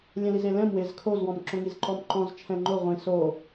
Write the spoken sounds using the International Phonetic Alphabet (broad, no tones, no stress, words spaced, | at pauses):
lʲɛ̃lizelɛ̃m wɪz kʰozwɔ̃m ǁõŋizǃɔmǃɔ̃z t͡ʃʰɛ̃ŋ͡ǃʊ ʁʷĩ so